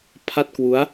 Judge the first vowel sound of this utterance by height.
low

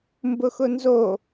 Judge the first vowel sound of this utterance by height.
high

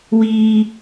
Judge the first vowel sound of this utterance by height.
high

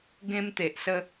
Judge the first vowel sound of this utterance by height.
mid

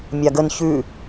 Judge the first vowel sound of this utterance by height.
low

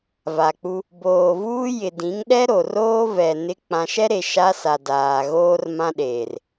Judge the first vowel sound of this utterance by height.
low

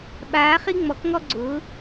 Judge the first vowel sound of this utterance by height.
low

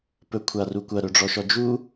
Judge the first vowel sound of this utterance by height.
mid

